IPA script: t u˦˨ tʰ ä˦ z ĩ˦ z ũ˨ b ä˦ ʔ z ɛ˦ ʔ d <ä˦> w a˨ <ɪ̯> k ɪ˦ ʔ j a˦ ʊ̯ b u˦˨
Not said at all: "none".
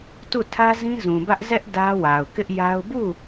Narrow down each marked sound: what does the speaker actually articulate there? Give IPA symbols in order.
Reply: ä˦, ʊ̯

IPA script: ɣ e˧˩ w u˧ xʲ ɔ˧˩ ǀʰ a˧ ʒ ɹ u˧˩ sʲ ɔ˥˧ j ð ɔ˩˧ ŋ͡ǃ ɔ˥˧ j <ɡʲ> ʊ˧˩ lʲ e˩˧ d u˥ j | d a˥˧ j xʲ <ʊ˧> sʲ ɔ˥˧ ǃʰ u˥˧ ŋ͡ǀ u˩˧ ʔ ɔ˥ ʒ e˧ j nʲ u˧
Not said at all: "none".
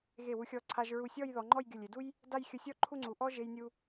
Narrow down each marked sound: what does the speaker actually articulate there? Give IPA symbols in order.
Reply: ɡʲ, ʊ˧

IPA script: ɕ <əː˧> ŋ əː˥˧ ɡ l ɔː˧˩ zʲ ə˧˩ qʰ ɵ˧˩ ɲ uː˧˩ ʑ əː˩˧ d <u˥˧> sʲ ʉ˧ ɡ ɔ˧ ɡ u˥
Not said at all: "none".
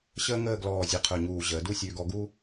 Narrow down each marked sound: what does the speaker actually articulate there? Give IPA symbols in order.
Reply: əː˥, u˥˧

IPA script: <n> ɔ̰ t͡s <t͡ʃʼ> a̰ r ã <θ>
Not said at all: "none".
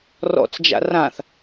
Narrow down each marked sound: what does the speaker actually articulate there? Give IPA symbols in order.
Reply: r, d͡ʒ, θ

